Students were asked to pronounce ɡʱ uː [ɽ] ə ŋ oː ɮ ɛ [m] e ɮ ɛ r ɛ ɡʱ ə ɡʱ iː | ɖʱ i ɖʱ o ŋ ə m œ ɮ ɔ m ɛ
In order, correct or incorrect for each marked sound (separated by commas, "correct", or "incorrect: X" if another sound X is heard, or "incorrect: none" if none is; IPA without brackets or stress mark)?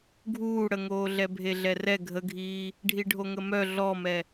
correct, incorrect: bʱ